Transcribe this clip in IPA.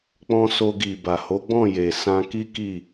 k͡p ɔ̃˧ s o˧ ɡ i˨ b a˨ h o˨˦ ɡ͡b ɔ̃˦˨ j e˨ s ã˧ k i˦ k i˦˨

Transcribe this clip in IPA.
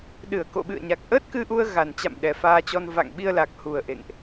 ɗ ɨ˧˩ ə̯ k o̰˧˨ ɓ ɨ̰˧˨ ə̯ ɲ a˨˩ k̚ ʔ əː˦˥ t̚ k ɨ˧ ʔ u˧ ə̯ ɣ a˨˩ n t͡ɕ a̰˧˨ m ɗ ɛ˨˩ f aː˧ t͡ɕ ɔ˧ n v a̰˧˨ ŋ ɓ i˧ ə̯ l a˨˩ k̚ h u˨˩ ə̯ ʔ ḛ˧˨ ŋ ʔ

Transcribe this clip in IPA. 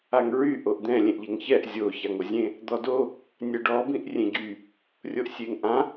a ŋ ɹ y ʔ o ʔ d̪ ɛ̃ lʲ ẽ ʔ ʎ e ŋ ç ɛ ʔ zʲ o ç a ŋ o zʲ ẽ | d̪ ɔ d o | nʲ ɛ ɖ ɔ b ĩ ʔ rʲ ẽ ɟ y | rʲ o ʔ sʲ e ŋ ʔ ã

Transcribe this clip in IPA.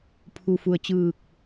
pʰ u˩ f u˩ ə̯ t͡ɕ ɯː˧˩ k̚

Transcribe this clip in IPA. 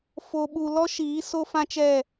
f o˨ ɓ u˨ l ɔ˦ ʃ iː˨˦ s o˦ f ã˦ t͡ʃ ɛ˦˨

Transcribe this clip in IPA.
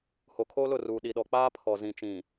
h o˨ kʰ oː˦ l ʊ˦˨ r uː˨ ɗ i˨ ɗ ɔ˨ k͡p aː˦ pʰ ɔ˨ z ĩ˨ t͡ʃ ĩ˨

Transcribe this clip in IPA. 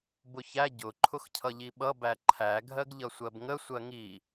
b ʊ ç æ ɟ ʊ ǃʰ ʊ x cʰ ʌ ʎ i ɓ ʌ b æ ǃʰ æ ɡʱ ɜ ɡ ʎ ʌ sʷ ɜ b ŋ ə sʷ ɜ ŋ i

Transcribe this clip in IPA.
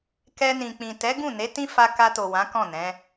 k ɛ˧ n ĩ˨ k͡p ĩ˨ t ɛ˨˦ ɡ ũ˦˨ n e˨˦ t ĩ˦ f a˧ k a˧ t o˨ w ã˨˦ k ɔ̃˦˨ n ɛ̃˨˦

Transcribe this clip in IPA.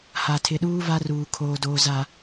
h a˨ tʰ ɪ˨ ɗ uː˦ v a˦ r uː˨ kʰ oː˨ d oː˨ z a˨

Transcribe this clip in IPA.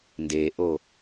n d e ʔ o

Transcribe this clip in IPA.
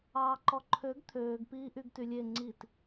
ɑː ǃ ɔ ǃʰ ø ɡ t̪ʰ øː ɡ p iː ʔ y ɡ t y lʲ e ŋ͡ǀ i t

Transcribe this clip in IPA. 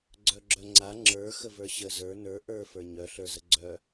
ɡ͡ǀ œ ɡ͡ǁ œ ŋ͡ǀ a ŋ͡ǁ ə˞ x ə v ə˞ ɕ ə z ə˞ n ə˞ ʔ ə˞ f ə˞ ɲ œ ɬ ə˞ z ə ɡ͡ǀ œ

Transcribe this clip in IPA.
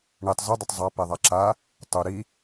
ɳ i tˤ z ʊ dˤ ʊ tˤ zˤ a p e ðˤ a ǁ a | tˤ u ɾ i

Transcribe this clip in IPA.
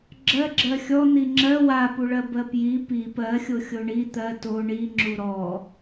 ɡ͡ǁ ɜ ɡ͡ǁ ɜ xʲ ɔ n̪ i ŋ͡ǁ ɜ w a p u ɭ ɜ b ɜ p j i p i p ɜ xʲ o xʲ o ɳ i t̪ ɜ t o ɳ i ŋ͡ǁ u ɾ ɔ

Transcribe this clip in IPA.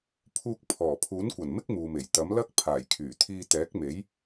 pʰ uː˧ k̚ pʰ ɔː˨˩ pʰ uː˨˥ n kʷ ɐ˨˩ n m ɪ˥ k̚ m uː˨ m e˨˩ j t̪ ɐ˨˥ m l ɐ˥ k̚ pʰ aː˨˩ j kʰ yː˨˩ t̪ʰ iː˧ t̪ ɛː˨˥ k̚ m e˨˥ j

